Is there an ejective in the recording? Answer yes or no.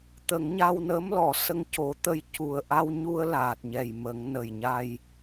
no